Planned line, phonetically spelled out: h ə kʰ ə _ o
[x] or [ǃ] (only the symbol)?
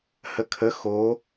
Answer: x